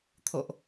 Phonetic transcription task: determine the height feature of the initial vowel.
mid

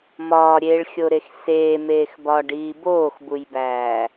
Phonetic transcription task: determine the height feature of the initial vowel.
low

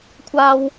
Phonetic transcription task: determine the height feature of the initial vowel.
low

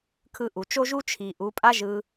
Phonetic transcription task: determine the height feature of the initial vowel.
high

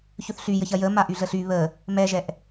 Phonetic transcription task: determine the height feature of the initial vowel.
mid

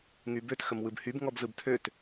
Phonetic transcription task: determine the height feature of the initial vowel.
high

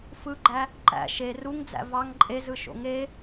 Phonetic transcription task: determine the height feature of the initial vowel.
high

